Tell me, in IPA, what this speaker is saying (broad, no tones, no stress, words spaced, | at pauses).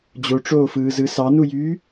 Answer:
d͡ʑoʈ͡ʂoːfɯːzɯ sɑnujyː